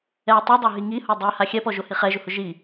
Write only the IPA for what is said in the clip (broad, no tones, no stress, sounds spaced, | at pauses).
ɛ tˤ i dˤ o ɦ i ŋ i h o dˤ ɛ h a xʲ ɛ p ɔ ʒ o h i χ ɛ ʒ ʊ h ʊ ʒ i